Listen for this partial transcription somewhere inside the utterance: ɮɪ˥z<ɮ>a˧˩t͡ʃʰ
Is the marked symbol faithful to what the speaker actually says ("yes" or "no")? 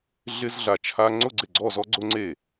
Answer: yes